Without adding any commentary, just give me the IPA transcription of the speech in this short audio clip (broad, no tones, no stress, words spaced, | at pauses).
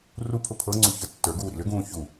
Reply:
rupʰʊ pʰɤŋ͡ǀu çə˞tːə˞ɡuː ɾḭlʏɡũː çu